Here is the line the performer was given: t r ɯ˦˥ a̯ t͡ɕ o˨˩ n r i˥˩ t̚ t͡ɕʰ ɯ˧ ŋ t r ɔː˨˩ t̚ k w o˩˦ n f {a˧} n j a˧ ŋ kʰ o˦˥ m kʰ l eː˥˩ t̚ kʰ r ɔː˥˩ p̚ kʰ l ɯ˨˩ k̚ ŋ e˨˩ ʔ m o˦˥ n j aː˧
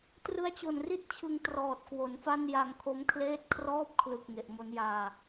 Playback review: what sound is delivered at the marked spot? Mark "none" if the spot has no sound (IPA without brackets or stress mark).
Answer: a˥˩